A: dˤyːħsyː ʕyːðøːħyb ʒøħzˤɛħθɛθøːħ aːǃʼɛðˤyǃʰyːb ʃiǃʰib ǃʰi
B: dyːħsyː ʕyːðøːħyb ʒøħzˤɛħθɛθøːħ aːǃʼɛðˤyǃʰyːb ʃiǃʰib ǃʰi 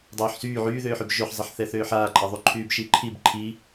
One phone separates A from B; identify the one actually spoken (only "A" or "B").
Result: A